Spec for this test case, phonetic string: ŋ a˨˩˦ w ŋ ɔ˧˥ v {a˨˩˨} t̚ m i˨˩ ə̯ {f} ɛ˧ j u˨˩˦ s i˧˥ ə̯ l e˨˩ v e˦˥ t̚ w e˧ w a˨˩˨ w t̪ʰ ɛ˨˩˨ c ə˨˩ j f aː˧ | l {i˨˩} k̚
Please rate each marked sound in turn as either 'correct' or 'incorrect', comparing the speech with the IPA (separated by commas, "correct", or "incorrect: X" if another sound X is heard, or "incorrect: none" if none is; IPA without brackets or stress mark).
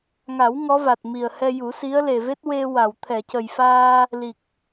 incorrect: a˨˩, incorrect: h, correct